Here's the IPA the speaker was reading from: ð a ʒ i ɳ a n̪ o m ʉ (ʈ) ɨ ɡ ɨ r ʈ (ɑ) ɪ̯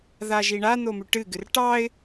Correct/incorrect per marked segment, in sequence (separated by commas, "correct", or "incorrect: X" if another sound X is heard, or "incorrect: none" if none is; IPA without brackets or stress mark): correct, correct